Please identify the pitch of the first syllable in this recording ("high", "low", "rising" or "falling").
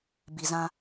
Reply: low